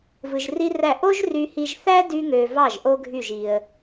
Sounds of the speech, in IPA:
v ɯ˧ ʒ r i˥ r æ˥˩ ʔ o˥ ʒ r y˧ h i˧ ʒ θ æ˥ d y˥ ŋ ø˧ v ɑ˥˩ ʒ ʔ o˥ ɡʱ y˥˩ ʒ i˧ ə̯

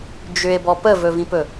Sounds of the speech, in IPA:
d͡ʒ ʏ e̯ b ɔ p ə v ɵ v ĩ p ɵ

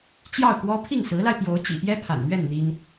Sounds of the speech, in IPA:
t͡ɕ j ɑ˥˩ ʊ̯ k w ɔ˥ pʰ i˥˩ ŋ s ɹ̩˧˥ l a˧ ɪ̯ p j o˧˥ ʊ̯ t͡ɕ ḭ˨˩ p j ɛ˥ pʰ a̰˨˩ n m ɥ ɛ˥˩ n n̪ i˥ n

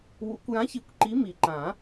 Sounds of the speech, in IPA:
w ṵ˨˩˦ kʷ j ã˨˥ ç i˨˩˦ kʷ ǃ i˨˥ m i˨˩˦ ǃ ã˨˩˦

